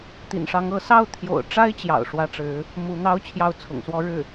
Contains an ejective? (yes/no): no